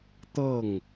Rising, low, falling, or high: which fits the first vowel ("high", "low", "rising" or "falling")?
falling